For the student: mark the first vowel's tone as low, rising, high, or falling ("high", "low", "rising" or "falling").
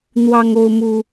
high